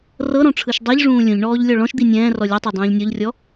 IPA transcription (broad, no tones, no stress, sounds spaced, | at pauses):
r ɤ ɾ ɔ̃ ʈ͡ʂʰ ɯ ʃ dˤ i ʎ ʐ ũː lʲ ũ ʎ ɳ ɔː ʎ lʲ ɔ ɭ ɔ̃ ʃ d̪ i nʲ ɛ̃ː r ɔ lʲ e tˤ e dˤ ũː ʎ nʲ ɔ ʎ rʲ ɔ